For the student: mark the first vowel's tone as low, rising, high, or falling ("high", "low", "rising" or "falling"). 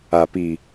low